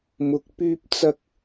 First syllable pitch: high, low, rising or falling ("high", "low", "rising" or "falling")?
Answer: low